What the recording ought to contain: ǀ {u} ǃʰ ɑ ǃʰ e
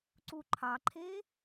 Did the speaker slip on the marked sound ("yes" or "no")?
no